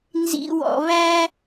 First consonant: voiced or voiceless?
voiced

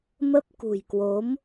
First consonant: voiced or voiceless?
voiced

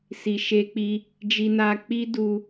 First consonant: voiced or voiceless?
voiceless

